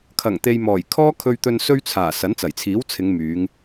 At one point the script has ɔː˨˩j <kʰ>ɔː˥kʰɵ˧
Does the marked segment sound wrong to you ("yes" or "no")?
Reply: no